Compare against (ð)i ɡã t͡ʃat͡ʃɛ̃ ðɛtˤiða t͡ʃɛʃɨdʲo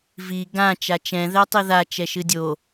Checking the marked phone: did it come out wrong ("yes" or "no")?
yes